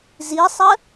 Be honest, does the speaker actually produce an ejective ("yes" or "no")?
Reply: no